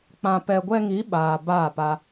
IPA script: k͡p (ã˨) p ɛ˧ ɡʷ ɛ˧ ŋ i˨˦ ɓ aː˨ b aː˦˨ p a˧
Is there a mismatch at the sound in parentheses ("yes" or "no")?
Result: yes